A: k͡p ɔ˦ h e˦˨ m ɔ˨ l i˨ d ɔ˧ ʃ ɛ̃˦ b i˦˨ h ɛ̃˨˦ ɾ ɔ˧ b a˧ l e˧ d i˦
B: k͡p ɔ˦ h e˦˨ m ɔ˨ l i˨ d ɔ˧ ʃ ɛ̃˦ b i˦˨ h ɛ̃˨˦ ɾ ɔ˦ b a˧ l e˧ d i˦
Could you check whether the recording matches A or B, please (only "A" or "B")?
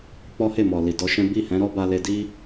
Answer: B